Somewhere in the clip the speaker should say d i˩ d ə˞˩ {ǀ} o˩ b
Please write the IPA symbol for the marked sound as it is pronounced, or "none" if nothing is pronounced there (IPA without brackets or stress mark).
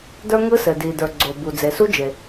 ɡ͡ǀ